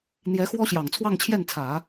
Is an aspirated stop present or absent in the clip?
present